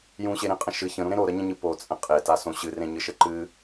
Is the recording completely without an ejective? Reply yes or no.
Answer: no